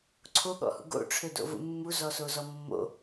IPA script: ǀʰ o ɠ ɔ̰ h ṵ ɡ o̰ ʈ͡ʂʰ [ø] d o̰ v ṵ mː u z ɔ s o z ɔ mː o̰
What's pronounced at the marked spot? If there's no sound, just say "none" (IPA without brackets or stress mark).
ø